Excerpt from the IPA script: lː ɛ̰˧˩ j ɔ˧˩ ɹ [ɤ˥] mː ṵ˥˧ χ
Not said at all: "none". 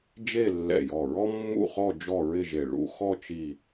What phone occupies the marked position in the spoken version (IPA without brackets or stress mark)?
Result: ɔ˥